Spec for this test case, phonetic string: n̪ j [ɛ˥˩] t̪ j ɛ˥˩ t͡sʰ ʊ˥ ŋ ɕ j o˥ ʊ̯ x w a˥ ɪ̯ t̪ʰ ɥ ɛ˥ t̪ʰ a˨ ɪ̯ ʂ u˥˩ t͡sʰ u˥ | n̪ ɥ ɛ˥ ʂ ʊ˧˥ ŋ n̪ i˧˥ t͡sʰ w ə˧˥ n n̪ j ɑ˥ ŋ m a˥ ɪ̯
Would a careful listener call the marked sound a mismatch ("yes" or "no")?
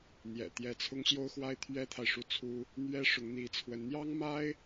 yes